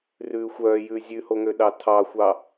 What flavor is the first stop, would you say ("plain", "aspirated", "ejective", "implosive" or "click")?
implosive